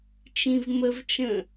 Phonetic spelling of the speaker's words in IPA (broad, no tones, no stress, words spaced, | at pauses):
t͡ʃĩvməvt͡ʃə̃